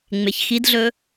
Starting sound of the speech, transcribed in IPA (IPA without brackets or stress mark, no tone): ŋ͡m